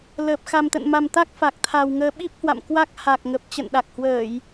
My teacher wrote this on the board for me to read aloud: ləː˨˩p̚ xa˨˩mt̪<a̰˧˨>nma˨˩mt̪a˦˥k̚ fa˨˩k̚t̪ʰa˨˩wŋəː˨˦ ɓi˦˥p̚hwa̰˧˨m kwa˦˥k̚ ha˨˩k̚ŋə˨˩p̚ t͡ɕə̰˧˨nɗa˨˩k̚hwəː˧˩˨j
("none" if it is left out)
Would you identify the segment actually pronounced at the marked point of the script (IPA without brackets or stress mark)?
ə̰˧˨